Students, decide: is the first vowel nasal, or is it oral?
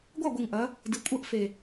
oral